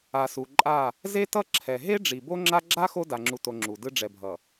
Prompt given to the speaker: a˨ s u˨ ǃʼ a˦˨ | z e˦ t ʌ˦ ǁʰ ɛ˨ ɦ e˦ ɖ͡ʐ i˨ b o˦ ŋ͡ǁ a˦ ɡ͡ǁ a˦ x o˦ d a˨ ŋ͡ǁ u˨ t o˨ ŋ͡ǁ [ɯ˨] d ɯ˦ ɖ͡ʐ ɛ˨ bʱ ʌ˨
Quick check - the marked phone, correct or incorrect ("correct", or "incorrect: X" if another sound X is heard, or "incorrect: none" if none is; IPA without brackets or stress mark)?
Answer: incorrect: u˨